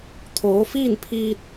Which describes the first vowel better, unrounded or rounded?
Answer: rounded